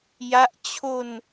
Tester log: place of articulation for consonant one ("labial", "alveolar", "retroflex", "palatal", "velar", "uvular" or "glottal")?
palatal